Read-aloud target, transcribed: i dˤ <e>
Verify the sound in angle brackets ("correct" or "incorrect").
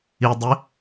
incorrect